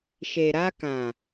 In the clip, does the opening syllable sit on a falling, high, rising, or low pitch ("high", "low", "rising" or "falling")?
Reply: low